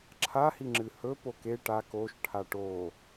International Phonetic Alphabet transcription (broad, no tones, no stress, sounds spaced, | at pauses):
ǁʰ a h i ŋ͡ǁ ɨ h ɵ p o k e ʈ a k o ʃ ʈʰ a ʈ o